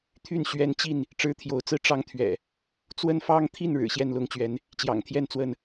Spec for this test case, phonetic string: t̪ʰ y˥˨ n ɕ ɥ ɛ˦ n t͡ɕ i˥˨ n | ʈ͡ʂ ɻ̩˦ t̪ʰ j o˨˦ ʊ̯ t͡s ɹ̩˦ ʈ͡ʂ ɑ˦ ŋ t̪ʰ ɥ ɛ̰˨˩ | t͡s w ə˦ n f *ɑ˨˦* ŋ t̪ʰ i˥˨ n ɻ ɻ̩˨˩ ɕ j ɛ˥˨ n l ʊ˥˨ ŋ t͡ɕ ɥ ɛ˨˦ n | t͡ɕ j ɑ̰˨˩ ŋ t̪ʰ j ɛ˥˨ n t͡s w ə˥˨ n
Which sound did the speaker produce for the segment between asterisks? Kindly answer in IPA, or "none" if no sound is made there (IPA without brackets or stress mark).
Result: ɑ˦